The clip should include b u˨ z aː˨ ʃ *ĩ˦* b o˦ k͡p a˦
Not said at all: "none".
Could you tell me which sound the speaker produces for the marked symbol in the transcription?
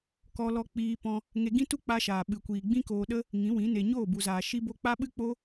i˦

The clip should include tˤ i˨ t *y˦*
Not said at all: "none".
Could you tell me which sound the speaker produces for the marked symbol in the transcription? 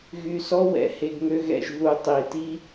i˦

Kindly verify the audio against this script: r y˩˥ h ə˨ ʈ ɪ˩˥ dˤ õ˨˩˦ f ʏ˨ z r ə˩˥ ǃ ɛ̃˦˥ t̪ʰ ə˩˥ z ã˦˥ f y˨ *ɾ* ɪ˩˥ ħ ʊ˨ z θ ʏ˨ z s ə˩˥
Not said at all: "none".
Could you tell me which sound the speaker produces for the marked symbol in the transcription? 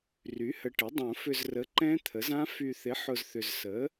θ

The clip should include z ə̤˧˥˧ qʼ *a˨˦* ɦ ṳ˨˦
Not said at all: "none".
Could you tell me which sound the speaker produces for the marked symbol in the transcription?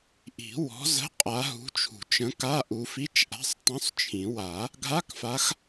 a˨˦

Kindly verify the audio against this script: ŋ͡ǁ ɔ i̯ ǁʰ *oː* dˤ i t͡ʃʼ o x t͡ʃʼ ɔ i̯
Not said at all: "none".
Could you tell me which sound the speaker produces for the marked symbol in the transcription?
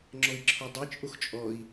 o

